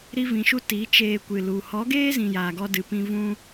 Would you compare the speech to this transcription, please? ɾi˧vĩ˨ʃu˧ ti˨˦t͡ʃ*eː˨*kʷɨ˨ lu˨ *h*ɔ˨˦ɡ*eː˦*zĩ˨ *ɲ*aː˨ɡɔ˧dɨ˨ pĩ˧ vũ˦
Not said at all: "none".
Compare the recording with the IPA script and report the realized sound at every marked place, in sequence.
eː˧, h, eː˦, j

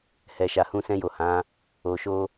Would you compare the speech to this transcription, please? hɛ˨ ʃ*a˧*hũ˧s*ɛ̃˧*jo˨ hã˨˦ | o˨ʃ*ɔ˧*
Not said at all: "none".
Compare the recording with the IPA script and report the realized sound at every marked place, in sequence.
a˨, ɛ̃˧, o˧

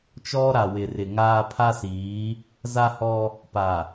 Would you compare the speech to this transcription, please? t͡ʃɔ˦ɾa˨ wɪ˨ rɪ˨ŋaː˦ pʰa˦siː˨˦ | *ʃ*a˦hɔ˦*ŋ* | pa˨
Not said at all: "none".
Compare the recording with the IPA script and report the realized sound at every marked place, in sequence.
z, none

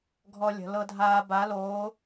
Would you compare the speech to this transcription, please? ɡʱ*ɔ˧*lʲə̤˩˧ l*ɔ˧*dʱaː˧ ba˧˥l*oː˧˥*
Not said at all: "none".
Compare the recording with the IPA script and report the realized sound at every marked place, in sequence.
ɔ˧, ɤ˧, oː˧˥

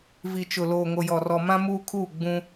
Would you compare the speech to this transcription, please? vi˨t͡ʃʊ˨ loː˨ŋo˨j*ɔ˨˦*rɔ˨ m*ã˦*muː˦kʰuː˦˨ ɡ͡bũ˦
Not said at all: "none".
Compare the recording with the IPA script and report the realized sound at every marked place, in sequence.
ɔ˨, ã˦

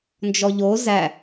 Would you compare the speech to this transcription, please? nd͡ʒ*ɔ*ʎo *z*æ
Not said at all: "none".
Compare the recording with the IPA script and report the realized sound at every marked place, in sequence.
ɔ, z

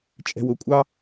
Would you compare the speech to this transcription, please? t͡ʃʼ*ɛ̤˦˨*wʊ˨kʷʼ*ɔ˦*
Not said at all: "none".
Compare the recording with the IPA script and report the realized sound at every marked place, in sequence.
ɛ̤˨, ɑ˦

